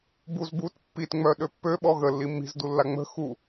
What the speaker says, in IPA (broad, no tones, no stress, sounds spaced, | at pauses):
b u z b u t pː i t ŋ͡m œ ɗ ø pː ø ɓ ɔ ɣ ə lː i mː i̤ z d u lː a ŋ͡m ə̤ x u